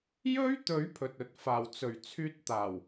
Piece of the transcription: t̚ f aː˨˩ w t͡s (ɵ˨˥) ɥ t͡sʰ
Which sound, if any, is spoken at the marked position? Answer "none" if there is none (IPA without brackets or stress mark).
ɵ˨˩